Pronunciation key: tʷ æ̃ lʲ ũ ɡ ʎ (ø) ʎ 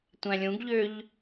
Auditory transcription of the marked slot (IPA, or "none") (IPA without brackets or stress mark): ø